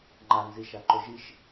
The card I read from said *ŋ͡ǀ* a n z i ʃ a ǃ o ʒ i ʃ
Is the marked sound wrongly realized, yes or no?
yes